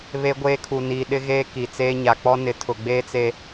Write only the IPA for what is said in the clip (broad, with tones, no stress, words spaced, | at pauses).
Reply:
βe˦ ɡʷeː˦kʰu˨niː˨ ɗɪ˦ɣeː˦ ki˨ t͡seː˦ ɲa˨k͡pɔ˦nɪ˨ tʰʊ˨ɡ͡beː˦t͡se˨